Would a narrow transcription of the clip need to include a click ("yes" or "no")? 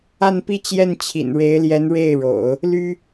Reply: no